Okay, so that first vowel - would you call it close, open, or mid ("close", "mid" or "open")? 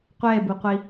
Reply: mid